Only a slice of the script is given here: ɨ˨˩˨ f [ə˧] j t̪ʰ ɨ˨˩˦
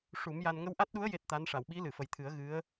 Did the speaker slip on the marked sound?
yes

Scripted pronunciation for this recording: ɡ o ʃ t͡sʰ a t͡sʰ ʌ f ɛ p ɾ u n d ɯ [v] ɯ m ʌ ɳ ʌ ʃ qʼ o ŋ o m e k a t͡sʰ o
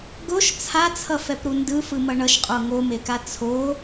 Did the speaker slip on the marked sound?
yes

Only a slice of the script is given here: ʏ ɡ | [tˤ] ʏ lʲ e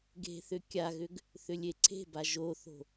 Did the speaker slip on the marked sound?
yes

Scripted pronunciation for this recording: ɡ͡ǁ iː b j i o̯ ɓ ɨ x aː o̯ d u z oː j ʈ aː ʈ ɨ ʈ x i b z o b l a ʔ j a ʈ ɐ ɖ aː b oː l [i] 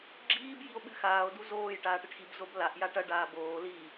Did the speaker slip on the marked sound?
no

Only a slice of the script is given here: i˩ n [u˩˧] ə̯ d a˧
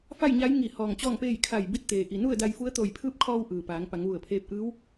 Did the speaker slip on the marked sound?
yes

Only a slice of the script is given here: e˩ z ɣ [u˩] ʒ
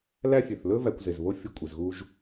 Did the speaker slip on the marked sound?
yes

